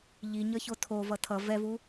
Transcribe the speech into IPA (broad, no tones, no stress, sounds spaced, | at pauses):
ʎ i ɲ ʌ ç o tʰ o v ʌ tʰ ʌ v ɛ v u